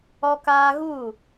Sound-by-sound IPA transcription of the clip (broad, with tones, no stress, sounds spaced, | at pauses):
ɔ˦ k aː˦ ɣ uː˦˨